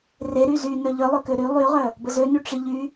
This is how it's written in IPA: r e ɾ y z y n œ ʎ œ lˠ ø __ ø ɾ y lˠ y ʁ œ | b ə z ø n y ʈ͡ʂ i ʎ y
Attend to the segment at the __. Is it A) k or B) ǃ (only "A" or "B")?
A